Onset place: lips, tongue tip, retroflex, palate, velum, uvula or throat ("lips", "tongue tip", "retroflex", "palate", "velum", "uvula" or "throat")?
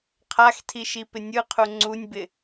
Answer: uvula